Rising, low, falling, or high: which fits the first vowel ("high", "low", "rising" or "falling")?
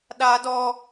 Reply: high